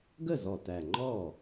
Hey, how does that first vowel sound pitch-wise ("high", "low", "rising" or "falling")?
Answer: falling